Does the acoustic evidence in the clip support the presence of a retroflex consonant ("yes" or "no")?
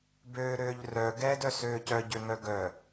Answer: no